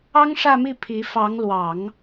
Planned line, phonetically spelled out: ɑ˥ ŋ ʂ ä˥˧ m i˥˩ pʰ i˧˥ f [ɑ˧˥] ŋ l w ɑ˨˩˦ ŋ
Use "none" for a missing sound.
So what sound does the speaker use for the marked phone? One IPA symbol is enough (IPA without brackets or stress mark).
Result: ɑ˧˥